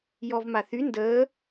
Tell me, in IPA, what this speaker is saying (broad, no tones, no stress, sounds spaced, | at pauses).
j ɔ v m a θ y n d əː